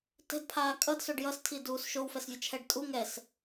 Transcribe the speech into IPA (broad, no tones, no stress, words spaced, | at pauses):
tɛ̤dpʰaː kʼʌdsoɖ jʌstʰiduːs ʃowfɛsvʲʌt͡ʃʰɛɖ tʼu ŋɛs